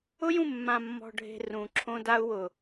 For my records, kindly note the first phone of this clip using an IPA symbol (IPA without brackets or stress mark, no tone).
ʊ